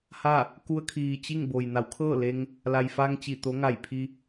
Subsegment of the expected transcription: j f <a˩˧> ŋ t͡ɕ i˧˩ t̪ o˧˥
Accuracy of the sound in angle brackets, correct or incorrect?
incorrect